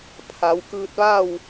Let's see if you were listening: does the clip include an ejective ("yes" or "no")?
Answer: no